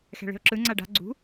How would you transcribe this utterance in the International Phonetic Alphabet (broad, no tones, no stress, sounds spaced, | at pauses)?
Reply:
x ɛ̤ ɭ e̤ ʊ̯ ǁ ɯ ŋ͡ǀ a ɖ a̤ ɡ͡ǀ ṳ